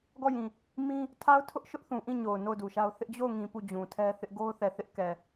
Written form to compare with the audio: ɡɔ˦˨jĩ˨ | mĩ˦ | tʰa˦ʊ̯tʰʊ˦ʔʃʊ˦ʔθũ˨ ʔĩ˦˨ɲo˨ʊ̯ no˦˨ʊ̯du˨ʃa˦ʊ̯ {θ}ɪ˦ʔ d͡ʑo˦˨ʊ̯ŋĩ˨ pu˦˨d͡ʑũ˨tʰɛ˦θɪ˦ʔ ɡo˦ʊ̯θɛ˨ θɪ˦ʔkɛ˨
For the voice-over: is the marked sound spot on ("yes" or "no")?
yes